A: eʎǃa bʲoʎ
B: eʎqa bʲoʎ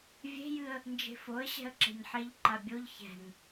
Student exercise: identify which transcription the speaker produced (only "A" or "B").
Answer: A